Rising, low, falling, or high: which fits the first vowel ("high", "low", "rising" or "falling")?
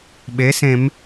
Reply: rising